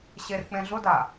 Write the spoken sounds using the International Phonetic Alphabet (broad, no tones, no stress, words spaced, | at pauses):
ɕerk͡pẽɮʊda